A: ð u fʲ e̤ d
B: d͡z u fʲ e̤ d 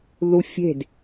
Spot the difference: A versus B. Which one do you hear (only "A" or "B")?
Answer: A